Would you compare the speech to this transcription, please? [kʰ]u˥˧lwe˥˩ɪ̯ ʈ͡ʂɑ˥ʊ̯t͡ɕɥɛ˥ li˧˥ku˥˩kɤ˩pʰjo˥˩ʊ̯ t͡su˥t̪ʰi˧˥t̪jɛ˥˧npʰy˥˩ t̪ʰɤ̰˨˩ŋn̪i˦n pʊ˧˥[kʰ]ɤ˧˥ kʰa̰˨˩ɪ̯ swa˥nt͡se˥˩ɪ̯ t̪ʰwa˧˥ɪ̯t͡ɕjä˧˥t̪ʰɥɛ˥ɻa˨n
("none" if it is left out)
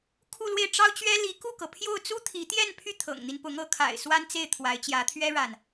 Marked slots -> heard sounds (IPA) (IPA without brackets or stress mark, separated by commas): kʰ, ŋ